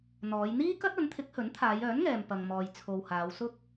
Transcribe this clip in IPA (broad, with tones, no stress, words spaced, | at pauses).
n̪ɔː˨˧j n̪iː˥kɐ˥t̚ ɐ˨˥nt̪ʰɪ˨˥k̚hɵ˨˥nt̪ʰaː˨˧j œː˨˥nŋɛː˨m pɐ˨ŋmɔː˨j t͡sʰo˨whaː˨˧w sʊ˥k̚